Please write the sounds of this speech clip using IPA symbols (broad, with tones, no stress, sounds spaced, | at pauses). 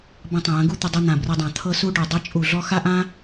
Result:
b ə̃˧ tˤ ə̃˨ j ə̃˨˦ ɡ u˦ t̪ ə˧ dˤ ɯ˧ n̪ ã˨ b r ə˧ dˤ ã˨ t̪ʰ ɤ˧ s u˧ ɖ o˨ dˤ ɛ˧ t͡ʃʼ u˨ ɮ ɔ˧ x a˦ ʔ ã˦